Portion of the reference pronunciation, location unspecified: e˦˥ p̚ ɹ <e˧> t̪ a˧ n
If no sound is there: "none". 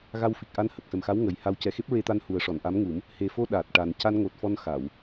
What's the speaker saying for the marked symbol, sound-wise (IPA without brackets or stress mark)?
e˧